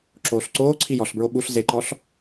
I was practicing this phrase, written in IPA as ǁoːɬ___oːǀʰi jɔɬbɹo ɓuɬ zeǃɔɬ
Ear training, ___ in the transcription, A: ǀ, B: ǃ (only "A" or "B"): A